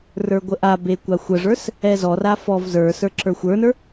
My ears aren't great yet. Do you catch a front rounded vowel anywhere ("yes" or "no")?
no